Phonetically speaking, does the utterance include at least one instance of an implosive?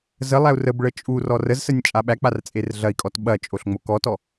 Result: yes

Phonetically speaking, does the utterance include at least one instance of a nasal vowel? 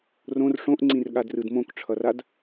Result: yes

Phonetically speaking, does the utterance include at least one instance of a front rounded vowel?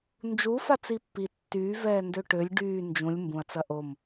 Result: yes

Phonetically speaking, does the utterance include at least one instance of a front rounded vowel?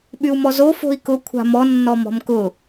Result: yes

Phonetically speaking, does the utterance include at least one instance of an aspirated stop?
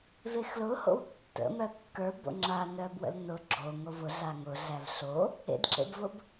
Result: no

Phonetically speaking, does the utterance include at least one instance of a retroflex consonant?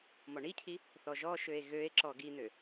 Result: yes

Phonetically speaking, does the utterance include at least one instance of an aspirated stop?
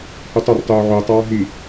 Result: no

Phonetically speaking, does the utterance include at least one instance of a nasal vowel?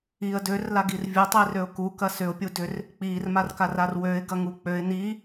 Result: no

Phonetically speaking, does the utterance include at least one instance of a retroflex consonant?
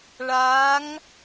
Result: yes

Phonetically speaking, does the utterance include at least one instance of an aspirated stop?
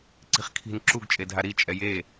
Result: yes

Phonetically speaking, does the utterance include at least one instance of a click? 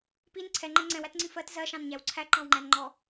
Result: yes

